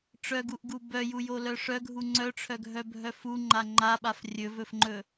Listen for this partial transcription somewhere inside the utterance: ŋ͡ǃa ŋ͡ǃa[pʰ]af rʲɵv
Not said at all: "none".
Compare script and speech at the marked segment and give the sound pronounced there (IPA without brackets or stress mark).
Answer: ɓ